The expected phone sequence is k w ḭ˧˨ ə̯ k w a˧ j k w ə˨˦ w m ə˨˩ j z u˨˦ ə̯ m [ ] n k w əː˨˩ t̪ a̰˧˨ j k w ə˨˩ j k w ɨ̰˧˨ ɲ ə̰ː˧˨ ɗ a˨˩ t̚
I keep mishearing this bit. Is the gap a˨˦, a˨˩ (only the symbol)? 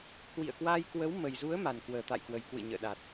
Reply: a˨˩